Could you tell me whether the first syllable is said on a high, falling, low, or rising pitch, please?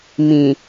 low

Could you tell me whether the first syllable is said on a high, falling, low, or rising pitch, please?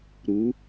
rising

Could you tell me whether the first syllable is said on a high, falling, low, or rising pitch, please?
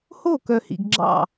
falling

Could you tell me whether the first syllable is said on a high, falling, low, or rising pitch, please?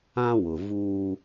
high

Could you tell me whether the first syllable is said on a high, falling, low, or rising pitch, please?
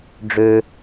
high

